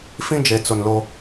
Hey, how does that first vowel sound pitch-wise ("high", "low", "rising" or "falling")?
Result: high